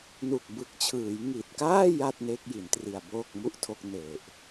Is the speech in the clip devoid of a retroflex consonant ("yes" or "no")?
yes